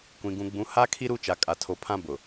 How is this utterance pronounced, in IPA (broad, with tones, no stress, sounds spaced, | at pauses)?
kʷ ĩ˨ ɡ ũ˨ ɡ͡b ũ˨˦ h a˦ kʰ i˦ ɾ u˦ t͡ʃ a˨ kʼ a˨ tʰ o˨˦ pʰ ã˦ b ʊ˨